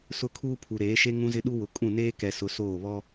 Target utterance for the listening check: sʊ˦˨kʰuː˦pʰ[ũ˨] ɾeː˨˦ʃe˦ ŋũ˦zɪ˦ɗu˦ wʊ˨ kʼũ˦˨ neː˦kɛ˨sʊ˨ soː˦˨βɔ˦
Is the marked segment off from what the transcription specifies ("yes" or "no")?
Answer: yes